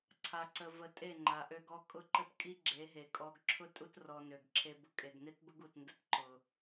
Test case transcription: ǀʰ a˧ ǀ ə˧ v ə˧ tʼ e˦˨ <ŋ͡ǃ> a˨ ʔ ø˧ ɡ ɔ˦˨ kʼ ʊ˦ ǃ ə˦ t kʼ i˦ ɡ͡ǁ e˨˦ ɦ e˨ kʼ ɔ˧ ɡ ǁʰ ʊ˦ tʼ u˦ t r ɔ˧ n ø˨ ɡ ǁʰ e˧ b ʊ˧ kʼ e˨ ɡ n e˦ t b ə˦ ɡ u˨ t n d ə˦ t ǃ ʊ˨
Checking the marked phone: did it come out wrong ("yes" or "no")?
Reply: no